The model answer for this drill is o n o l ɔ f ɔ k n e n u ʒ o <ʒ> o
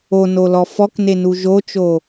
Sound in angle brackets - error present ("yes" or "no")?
yes